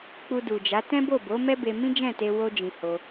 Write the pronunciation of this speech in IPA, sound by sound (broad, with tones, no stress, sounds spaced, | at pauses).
k͡p u˧ d u˨ d͡ʒ a˨˦ t ɛ̃˦ b o˦˨ b o˨˦ m ɛ˦ b e˧ m ĩ˦ d͡ʒ ɛ̃˦˨ t e˧ w o˧ d͡ʒ ĩ˨ h o˧